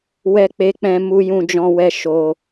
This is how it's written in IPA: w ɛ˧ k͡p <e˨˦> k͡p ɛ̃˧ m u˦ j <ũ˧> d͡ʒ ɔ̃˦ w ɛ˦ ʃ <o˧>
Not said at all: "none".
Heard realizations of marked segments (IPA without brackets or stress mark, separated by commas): e˧, ũ˦, o˧